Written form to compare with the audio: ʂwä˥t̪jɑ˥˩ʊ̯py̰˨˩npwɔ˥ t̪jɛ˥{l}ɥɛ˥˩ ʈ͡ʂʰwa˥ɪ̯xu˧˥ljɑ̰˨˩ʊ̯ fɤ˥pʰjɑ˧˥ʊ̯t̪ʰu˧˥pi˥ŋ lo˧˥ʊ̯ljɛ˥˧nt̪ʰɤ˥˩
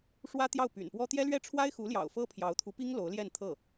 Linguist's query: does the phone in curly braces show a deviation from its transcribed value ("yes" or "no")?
no